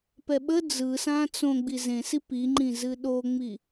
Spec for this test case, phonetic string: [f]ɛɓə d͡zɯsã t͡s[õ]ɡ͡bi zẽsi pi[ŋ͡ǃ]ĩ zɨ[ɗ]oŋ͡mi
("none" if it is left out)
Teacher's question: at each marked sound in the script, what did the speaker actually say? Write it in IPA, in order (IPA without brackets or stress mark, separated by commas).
p, õ, ŋ͡ǃ, ɗ